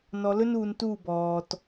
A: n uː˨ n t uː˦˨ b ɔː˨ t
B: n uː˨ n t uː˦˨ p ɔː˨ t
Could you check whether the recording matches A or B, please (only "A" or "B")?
A